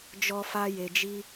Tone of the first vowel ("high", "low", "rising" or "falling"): high